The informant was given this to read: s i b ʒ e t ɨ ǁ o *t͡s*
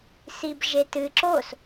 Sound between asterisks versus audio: incorrect: s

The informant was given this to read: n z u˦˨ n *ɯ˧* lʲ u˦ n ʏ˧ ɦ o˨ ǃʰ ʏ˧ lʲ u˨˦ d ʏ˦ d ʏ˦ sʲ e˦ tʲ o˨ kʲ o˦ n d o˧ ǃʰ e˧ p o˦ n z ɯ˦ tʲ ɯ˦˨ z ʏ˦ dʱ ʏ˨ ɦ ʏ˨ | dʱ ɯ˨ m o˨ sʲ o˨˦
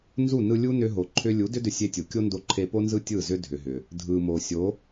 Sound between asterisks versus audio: correct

